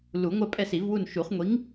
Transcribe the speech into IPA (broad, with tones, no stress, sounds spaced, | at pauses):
l u˨˩˦ ŋʷ ɜ˦˨ pʼ ɛ˦˨ s i˨˩˦ v w u˦˨ n ʃ u˨˩˦ χ ŋʷ i˨˥ ŋ